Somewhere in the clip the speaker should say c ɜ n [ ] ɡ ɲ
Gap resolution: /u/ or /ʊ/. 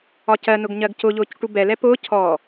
ʊ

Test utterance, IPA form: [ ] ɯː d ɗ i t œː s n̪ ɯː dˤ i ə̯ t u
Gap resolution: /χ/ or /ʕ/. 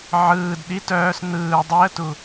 ʕ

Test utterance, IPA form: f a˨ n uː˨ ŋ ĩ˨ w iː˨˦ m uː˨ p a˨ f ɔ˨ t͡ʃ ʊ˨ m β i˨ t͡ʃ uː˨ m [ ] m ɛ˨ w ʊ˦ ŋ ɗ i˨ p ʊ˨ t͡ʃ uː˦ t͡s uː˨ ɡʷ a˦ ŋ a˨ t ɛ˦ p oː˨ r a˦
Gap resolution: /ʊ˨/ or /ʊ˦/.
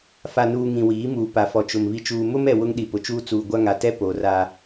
ʊ˦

